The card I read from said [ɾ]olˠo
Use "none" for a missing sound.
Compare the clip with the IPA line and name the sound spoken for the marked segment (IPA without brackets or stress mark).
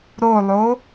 ɾ